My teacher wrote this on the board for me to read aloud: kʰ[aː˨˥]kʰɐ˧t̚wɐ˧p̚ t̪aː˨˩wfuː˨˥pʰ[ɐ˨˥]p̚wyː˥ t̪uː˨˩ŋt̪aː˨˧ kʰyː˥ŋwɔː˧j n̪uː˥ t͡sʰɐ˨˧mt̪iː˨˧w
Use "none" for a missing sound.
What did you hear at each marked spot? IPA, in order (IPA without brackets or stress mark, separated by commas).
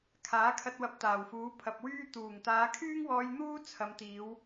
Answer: aː˨˥, ɐ˨